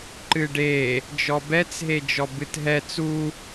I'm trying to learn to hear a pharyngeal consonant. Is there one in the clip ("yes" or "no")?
no